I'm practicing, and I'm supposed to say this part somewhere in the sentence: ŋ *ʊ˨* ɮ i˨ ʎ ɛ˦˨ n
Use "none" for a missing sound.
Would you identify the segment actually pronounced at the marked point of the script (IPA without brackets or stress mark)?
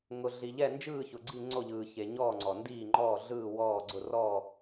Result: ʊ˨